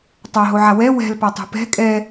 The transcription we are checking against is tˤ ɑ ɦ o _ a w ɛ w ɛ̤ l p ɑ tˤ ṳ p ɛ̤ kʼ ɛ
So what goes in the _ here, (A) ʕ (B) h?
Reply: A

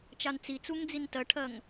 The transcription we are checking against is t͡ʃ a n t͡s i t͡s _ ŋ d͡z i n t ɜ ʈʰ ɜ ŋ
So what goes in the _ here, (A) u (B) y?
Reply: A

